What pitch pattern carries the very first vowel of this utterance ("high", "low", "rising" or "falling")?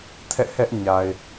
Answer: falling